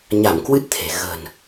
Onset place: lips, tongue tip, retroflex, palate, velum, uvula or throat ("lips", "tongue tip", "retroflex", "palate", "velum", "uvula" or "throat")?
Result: palate